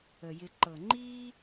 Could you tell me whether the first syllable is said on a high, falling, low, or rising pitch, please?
low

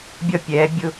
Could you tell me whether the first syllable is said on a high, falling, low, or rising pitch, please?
falling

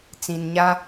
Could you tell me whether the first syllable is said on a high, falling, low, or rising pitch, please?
low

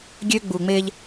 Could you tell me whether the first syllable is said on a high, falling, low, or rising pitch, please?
high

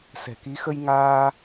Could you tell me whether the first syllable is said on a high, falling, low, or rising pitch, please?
low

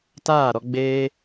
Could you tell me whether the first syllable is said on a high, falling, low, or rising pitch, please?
falling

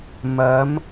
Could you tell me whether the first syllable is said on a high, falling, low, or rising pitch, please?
rising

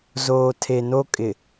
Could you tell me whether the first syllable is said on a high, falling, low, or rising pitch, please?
low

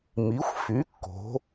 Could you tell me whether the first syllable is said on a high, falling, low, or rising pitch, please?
rising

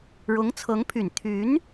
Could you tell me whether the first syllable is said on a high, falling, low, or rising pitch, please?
rising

